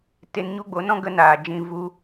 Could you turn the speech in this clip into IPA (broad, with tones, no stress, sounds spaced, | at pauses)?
t e˧ n ɲ u˦ ɡ͡b o˨˦ n ɔ̃˦ ɡ ə˦ n aː˨ d͡ʒ ĩ˧ v u˧